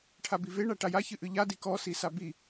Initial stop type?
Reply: aspirated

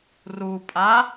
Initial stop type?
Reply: ejective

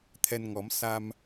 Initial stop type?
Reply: aspirated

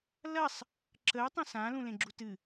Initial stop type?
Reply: click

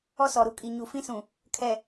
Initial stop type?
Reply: ejective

